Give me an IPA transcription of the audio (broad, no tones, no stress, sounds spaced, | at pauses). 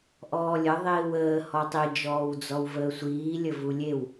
ʔ ɔː lʲ ə ðˤ iː w əː h ɔ tˤ i d͡ʒ ɔː w d͡z ɔ w v əː sʷ iː lʲ ə v u lʲ e w